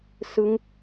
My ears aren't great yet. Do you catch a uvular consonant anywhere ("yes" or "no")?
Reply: no